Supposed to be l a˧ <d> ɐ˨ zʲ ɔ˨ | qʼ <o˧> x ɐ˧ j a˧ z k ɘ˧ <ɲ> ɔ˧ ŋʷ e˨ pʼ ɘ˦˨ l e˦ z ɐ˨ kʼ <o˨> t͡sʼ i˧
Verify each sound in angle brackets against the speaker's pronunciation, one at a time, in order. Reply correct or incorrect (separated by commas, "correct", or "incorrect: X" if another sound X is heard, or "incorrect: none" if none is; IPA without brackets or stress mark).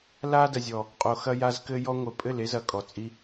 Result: correct, incorrect: o˨, incorrect: j, incorrect: ɔ˨